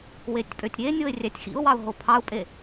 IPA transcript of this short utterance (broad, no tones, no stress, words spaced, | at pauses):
wetʲpʼøtʲɾʲe nʲoɪ̯rʲætʲxḭʊ̯wɑʊ̯ ɦopʰɑʊ̯pʼe